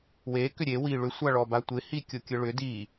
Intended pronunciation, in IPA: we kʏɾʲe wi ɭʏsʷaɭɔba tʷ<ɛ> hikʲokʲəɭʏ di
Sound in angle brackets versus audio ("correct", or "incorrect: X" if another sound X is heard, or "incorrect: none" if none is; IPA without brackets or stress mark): incorrect: ɪ